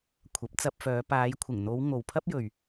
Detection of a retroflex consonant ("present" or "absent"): absent